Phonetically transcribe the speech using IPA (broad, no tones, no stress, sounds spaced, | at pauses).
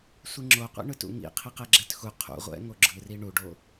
sʷ i ŋ͡ǁ o qʷ ḭ ɳ ɯ t ṵ ŋ ḭ qʰ i q ɛ ɡ͡ǁ ɛ t x u qʰ ṵ ʁʷ ɛ̰ ŋ o ɡ͡ǁ ɯ r i ɳ u ɖ o